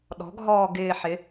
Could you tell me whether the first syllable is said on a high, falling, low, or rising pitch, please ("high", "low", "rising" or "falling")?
rising